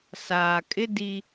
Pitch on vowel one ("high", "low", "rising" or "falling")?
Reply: low